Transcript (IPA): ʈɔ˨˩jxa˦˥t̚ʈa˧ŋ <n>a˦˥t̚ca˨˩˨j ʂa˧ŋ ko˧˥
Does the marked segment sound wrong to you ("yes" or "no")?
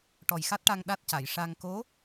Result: yes